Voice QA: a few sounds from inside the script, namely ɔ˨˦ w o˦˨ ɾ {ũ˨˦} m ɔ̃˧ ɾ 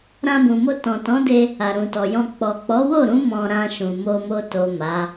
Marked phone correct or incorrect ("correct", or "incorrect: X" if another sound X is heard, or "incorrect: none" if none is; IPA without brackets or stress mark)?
correct